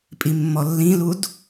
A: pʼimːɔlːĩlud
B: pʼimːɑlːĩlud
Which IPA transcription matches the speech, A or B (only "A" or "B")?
A